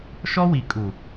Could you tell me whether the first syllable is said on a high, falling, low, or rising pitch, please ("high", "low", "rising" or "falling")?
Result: high